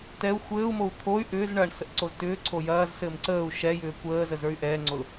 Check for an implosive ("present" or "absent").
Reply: absent